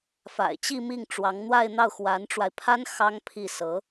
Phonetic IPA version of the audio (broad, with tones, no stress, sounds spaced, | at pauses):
f a̰˨˩ ɪ̯ t͡ɕ i˥˧ m i˥˩ ŋ ʈ͡ʂ w ɑ˧˥ ŋ n̪ w a˥˧ ɪ̯ n̪ ɑ˥˩ ʊ̯ x w a˧˥ n ʈ͡ʂ w a˧ ɪ̯ pʰ a˥ n x ɑ˥ ŋ pʰ i˥˩ s ɤ˧˥